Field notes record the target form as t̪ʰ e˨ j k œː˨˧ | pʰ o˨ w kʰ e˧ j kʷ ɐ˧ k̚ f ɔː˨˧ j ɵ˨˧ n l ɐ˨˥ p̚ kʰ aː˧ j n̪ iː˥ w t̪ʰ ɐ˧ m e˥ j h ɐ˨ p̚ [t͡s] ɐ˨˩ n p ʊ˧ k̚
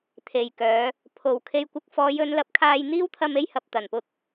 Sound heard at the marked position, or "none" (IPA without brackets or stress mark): t̪